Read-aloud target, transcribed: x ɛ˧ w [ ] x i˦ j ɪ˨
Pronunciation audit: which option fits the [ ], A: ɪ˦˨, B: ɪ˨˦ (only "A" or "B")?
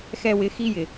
B